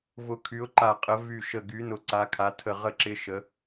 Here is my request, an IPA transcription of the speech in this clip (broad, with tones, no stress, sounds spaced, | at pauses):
v ʊ˦˨ kʰ y˧˥ ʊ̯ ǃ a˦˨ qʼ ə˧˥ v y˦˨ ʃ ə˦˨ ɡ y˧˥ n ʊ˦˨ ǀ a˧˥ kʰ a˧˥ tʰ ə˦˨ ʁ ə˦˨ ǁ ɪ˧˥ ʃ ə˧˥